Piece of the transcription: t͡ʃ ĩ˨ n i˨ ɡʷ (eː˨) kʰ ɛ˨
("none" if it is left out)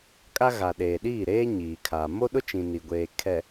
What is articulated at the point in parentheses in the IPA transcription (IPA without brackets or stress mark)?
eː˨